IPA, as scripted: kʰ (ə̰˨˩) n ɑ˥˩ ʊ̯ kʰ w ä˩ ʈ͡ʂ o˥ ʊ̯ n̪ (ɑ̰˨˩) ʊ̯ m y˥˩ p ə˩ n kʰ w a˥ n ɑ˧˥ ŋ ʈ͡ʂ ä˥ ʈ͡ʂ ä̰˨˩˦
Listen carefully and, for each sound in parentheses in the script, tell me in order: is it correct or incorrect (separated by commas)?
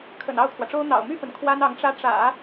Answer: correct, correct